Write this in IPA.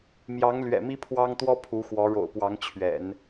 mjɑ˧˥ŋlɥɛ̰˨˩ mi˥pʰwɑ˥ŋt̪wɔ˥ pʰu˧˥xwɔ˧˥ ɻo̰˨˩ʊ̯pwɑ˧˥ŋ t͡ɕʰɥɛ̰˨˩˦n

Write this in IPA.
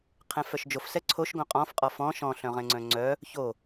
qʰɛ̃fœʃd͡ʒof sɛǀʰoʃ ɡõqʼɔ̃f qʼɔfɔ̃ ʃɔ̃ ɬœ̃ʁɛ̃ŋ͡ǀœ̃ŋ͡ǀœ | ço

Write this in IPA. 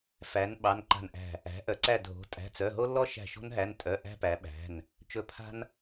fæ˩˧n ɓɑ˩˧˩nǃa̤˧˩nʔæ̤˧˩ | æ̤˩˧ʔœ˩˧ ǀæ˧˩dʱo̤˩˧ tʼæ̤˩˧˩t͡sœ˩˧˩ ɦo˦lːɔ˦ʃæ̤˧˩ ʃo̤˦nɦæ˩˧˩ntʼœ˩˧˩ ʔæ̤˦pæ˩˧ɓæ̤˩˧˩n | t͡ʃɵ˧˩ pʰa̤˦n

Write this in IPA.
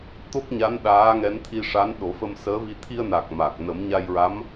t̪o˦˥k̚ɲa˧˥n ɗaː˧˥ŋɛ˧˥nt̪ʰi˧ʂa˧˥n ɗo˨˩˦fə˧msəː˧˥vi˧ t̪ʰi˧ə̯na˨˩k̚ ma˨˩k̚ nə˨˩˦mɲa˧jɹa˧˥m

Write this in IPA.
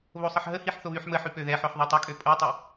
βosˤəħɦəhiħ θoβyħməħy pøðɛħœħ ðˤɛtˤəkʼø pʼotˤə

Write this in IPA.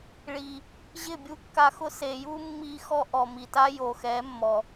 ɭi˨ | ʑɪ˦˨bʲu˧ kːa˧xʊ˦ se˨ju˦mːi˧ xɔ˦ʔɔ˨mi˨ta˦ jo˨xɛ˨˦mːɔ˨

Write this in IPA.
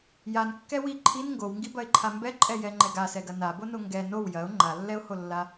jankːɛ wi ǃʰin ŋɡowŋɡibɐɪ̯ǃʰa mbɛǃʼɛjɛŋ͡ǃɛɡ asɛɡɐ nabono ŋɡɛ now jɐʊ̯ ŋ͡ǃalːɛʊ̯holːa

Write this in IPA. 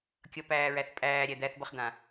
kʲʌ pæːɹæθpʼæːɾʲæ d̪æθbʌχd̪ã

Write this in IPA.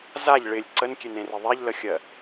zaʎ ɭɪlʲ ǀənkʲenẽrɪ ðˤɛʎləxʲɜ

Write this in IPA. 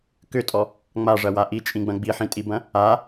kʏtʼɔ | ŋ͡maʐɐwa ʔit͡ʃʼĩɡ͡bɐ̃ ɡ͡biħĩtʼibɐ̃ | a

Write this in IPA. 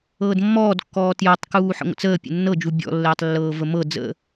ɤːdmːɔːdkːɔː tjɔtˤkuː ħə̰ŋʷə̰t͡səːpʲə̰ nːɤd͡ʒu bʲɔ̰lːəːtˤlːɤː vəmɤ d͡zə̰

